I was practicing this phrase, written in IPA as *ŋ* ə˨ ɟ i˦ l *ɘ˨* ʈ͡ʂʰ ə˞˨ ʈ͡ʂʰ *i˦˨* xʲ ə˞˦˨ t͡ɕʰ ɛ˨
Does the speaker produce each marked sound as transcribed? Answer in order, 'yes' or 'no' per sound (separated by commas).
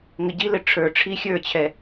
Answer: yes, yes, no